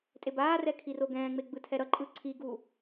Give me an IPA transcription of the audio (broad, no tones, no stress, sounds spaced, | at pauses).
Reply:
tʼ e b aː r ɛ kʰ i r o ɡ ɛ̃ː ŋ͡m e ɡ͡b ɯ tʰ ɛ ɾ ʌ ǃʼ ɯ ǀʰ i ɡ u